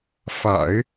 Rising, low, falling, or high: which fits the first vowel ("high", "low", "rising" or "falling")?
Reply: low